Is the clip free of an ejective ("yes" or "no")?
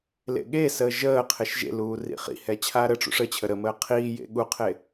yes